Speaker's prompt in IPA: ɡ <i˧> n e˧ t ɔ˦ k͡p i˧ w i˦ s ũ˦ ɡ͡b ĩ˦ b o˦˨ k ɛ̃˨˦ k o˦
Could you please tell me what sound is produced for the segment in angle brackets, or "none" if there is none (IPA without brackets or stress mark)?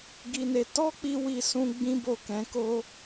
i˧